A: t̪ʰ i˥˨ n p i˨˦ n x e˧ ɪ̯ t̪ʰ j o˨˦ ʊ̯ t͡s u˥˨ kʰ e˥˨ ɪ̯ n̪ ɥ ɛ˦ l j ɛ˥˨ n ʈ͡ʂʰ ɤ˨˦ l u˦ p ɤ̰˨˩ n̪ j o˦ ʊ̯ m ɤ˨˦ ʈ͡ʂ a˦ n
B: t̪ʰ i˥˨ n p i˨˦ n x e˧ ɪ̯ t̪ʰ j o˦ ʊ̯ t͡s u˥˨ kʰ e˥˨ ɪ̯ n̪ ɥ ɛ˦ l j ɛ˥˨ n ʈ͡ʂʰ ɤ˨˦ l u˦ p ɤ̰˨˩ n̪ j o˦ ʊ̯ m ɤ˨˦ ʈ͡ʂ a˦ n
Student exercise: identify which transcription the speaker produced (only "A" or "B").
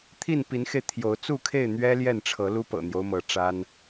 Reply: A